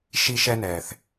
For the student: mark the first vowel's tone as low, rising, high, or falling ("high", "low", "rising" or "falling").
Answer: high